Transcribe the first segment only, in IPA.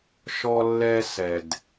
ʃ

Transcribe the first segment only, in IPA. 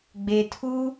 ɡ͡b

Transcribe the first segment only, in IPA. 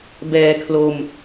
b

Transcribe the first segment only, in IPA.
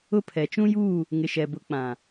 ʊ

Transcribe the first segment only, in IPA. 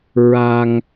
ɹ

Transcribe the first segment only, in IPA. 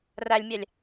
r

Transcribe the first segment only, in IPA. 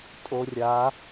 tʼ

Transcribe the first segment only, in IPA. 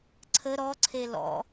ǀʰ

